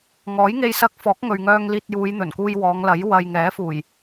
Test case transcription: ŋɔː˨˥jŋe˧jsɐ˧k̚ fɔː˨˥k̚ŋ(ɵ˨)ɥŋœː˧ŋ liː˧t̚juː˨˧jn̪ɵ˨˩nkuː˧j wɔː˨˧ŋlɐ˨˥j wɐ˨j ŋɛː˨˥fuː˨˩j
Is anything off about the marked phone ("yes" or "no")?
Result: no